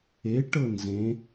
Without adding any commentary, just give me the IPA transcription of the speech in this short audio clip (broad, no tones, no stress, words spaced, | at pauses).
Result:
e ʈɤnzẽ